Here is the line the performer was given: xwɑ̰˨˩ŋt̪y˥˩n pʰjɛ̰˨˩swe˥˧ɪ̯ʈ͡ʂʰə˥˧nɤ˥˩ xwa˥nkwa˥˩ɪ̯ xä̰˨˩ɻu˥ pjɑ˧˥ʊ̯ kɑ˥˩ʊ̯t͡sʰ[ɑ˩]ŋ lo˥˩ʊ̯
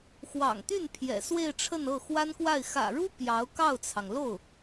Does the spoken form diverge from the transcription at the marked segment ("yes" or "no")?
no